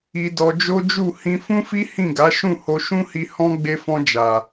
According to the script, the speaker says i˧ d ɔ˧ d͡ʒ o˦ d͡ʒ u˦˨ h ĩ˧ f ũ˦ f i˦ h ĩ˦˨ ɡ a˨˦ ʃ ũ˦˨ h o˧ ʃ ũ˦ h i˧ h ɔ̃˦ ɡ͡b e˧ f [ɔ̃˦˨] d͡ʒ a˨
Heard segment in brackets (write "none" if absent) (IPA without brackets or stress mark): ɔ̃˧